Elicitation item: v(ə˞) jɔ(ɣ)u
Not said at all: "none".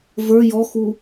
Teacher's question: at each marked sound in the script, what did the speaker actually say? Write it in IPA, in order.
ə˞, x

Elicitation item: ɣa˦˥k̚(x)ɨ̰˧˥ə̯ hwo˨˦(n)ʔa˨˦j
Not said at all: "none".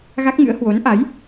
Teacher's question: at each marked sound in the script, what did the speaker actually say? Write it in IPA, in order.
ŋ, n

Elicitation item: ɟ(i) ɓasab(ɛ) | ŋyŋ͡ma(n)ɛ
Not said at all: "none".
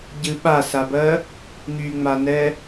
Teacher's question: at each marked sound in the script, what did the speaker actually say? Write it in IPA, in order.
ɨ, ɜ, n

